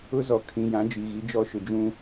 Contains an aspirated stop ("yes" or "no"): yes